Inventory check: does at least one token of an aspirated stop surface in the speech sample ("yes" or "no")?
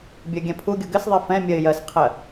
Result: yes